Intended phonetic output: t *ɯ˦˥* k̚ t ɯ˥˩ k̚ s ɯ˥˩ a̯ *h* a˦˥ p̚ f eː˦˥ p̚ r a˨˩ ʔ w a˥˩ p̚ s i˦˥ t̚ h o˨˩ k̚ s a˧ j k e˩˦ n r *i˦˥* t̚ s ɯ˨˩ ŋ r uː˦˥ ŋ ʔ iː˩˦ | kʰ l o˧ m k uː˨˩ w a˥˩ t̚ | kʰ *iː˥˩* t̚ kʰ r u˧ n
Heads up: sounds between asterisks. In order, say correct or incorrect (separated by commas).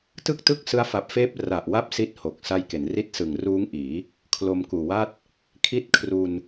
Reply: incorrect, incorrect, correct, incorrect